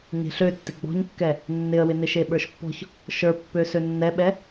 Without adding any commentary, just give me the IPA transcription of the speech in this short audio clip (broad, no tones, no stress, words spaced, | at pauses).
ɲe̤ɬøtːɪ ɡ͡bɔ̤ɲkːɛ | nːɪə̯wɪnɪ ʃeɓə˞ʃpːɔ̤ç | ʃə˞pːø sønːɛɓɛ